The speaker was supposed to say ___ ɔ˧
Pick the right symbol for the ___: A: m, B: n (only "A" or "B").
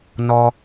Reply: B